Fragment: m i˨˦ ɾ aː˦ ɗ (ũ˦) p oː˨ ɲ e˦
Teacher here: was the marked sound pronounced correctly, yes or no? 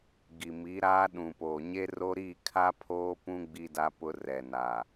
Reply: no